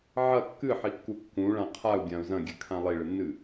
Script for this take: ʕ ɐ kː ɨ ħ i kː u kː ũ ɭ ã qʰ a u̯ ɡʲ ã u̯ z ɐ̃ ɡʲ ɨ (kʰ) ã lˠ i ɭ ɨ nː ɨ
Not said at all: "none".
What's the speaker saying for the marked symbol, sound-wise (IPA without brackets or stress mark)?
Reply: kʰ